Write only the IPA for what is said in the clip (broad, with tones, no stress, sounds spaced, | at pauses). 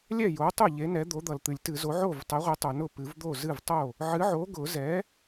lʲ ɛ˥˩ j o˨˥ tˤ ʊ˥˩ ʎ e˨˥ n ɛ˨˥ d̪ o˨˥ d̪ ʌ˨ l t̪ ɨ˨˩˦ lʲ t ɨ˨˩˦ z o˨˥ ʕ o˥˩ v tˤ ɛ˨˥ ʁʷ e˨˥ tˤ o˨ n ʊ˥˩ p ɨ˨˩˦ v d̪ o˥˩ z ɨ˥˩ v tˤ o˥˩ | ʕ ɨ˨˥ ʕ o˨˥ ɡ ʊ˨˩˦ z ɛ˨˥